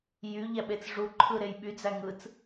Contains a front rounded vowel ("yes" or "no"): yes